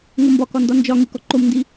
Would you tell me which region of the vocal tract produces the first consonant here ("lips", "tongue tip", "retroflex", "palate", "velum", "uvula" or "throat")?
velum